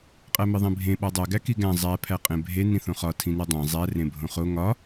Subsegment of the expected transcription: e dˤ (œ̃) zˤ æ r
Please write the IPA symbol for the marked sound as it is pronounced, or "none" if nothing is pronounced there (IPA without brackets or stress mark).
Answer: æ̃